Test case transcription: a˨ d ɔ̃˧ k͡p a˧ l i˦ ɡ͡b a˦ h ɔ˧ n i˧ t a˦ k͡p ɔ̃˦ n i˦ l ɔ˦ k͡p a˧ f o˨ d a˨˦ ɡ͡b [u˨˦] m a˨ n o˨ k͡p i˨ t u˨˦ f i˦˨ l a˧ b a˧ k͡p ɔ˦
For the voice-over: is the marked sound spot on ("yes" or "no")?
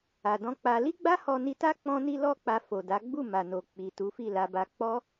no